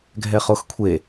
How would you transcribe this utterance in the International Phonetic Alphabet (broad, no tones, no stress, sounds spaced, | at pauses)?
ɡʱ ɛ χ o x kʷʰ e